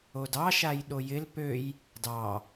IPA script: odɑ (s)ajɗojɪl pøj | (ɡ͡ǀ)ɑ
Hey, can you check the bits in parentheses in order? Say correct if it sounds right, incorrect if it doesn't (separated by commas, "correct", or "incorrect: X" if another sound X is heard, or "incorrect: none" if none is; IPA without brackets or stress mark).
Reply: incorrect: ʃ, incorrect: d